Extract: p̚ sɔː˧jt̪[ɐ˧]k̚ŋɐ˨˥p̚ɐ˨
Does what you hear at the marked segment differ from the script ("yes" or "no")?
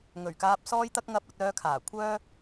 no